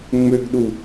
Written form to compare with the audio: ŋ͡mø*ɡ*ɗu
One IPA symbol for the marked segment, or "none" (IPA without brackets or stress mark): ɡ